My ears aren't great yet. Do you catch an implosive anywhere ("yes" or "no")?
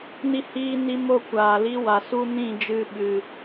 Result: yes